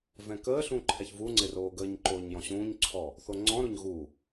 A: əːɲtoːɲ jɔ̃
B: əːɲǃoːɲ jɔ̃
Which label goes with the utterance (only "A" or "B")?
B